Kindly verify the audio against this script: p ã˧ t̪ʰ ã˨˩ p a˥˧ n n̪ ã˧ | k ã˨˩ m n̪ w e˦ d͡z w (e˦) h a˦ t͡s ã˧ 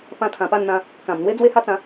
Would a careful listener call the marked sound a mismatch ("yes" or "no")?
no